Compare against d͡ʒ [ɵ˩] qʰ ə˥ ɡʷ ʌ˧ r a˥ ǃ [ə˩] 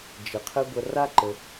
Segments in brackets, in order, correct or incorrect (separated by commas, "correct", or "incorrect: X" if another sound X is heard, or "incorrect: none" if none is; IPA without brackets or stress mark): incorrect: ə˩, correct